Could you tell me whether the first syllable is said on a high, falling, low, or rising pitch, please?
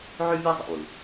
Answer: high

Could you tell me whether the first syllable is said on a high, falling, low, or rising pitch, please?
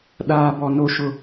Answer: low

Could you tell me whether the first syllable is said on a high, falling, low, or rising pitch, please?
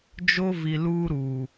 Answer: high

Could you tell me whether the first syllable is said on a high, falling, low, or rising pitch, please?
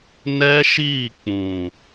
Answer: high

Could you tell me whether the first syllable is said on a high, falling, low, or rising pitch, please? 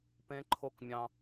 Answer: high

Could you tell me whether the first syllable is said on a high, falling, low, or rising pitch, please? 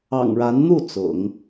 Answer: low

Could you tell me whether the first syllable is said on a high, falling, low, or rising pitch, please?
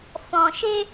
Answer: low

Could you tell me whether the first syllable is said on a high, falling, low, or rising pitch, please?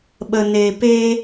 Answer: low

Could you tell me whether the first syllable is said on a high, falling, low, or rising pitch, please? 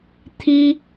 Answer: high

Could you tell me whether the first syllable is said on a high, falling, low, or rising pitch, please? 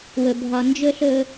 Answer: low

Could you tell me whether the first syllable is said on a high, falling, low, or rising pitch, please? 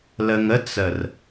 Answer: low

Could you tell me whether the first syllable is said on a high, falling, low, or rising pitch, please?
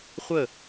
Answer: falling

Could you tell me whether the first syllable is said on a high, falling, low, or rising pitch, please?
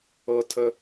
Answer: high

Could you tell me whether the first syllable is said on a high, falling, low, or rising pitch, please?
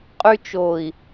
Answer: high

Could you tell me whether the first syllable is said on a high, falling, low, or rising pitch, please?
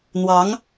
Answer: rising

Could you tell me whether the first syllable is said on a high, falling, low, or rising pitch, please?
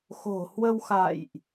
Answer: low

